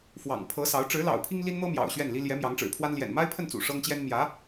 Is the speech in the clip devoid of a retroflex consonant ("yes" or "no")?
no